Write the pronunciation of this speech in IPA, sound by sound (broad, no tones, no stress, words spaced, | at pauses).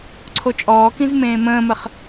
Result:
ǀʰot͡ʃʼɔːkĩz mẽːmə̃ːməχ